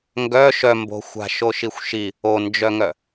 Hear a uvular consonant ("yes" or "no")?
no